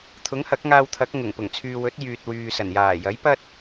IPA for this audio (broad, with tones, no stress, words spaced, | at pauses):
t̪ʰʊ˨˥ŋhɐ˨˥k̚ŋaː˧wt̪ʰɐ˨˥k̚ ŋʊ˨˩ŋpʊ˨˩ŋt͡sʰyː˨wɵ˨˥t̚ jyː˨t̚wyː˨sɐ˨˩n jaː˨˩jɐ˨˥jpɐ˥t̚